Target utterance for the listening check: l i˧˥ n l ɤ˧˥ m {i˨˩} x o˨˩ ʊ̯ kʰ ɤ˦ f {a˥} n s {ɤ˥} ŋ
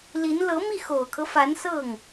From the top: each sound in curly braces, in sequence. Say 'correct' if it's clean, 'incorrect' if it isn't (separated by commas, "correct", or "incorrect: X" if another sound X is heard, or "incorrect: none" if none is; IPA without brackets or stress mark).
incorrect: i˥˩, incorrect: a˧˥, incorrect: ɤ˥˩